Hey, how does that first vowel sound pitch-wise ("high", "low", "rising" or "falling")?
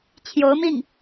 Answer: rising